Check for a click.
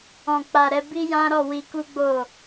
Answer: absent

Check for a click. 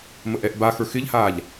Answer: absent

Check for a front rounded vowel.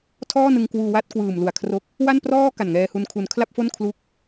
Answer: absent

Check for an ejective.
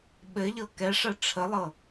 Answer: absent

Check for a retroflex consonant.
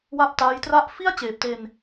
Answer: absent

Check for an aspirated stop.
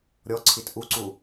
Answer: present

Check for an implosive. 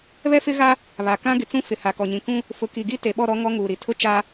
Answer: present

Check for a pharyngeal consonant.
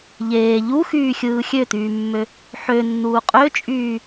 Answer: present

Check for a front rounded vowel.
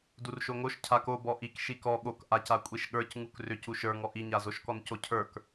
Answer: present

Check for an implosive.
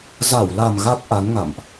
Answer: absent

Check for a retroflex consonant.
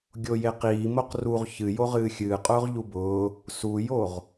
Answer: absent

